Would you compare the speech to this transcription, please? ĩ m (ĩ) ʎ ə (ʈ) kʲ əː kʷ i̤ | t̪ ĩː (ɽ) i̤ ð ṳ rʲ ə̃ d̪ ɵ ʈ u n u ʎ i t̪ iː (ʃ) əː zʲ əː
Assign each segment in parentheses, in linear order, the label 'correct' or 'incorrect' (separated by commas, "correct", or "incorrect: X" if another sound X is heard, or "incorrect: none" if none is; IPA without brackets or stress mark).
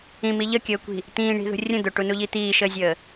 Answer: incorrect: i, incorrect: none, incorrect: ɳ, correct